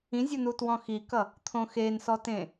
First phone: ĩ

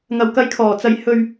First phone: ŋ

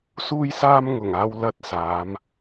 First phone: s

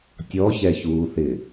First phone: tʲ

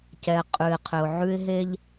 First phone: c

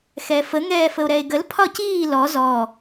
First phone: x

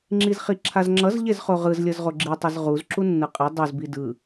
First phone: ŋ͡ǁ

